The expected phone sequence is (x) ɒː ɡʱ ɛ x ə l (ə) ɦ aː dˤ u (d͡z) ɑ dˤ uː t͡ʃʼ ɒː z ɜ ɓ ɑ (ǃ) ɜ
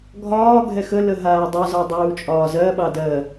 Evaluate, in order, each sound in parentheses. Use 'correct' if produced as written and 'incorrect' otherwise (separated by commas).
incorrect, correct, incorrect, incorrect